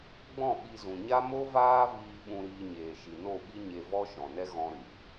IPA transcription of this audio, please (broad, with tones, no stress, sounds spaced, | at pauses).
ɡ͡b ɔ̃˦˨ ɓ i˧ z ũ˨ ɲ a˦ m o˦ v aː˦ v iː˧ ɓ ũ˧ ɾ iː˧ ɲ eː˨ ʃ i˨ n o˦˨ ɓ i˦ ɲ e˧ v ɔ˦ ʃ ɔ̃˨ n ɛ˦ ɣ ɔ̃˧ ɾ ɨ˨